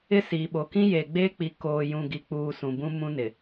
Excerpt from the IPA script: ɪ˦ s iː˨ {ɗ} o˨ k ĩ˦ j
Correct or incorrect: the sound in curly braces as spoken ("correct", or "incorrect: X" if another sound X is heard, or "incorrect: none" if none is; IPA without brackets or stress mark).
incorrect: ɓ